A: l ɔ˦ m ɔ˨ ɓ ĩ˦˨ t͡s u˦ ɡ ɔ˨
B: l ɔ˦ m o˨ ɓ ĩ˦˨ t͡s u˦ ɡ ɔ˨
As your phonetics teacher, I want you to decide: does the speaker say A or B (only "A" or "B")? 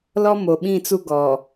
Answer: B